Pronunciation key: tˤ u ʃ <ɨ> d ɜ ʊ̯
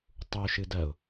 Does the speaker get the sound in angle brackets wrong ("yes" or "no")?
no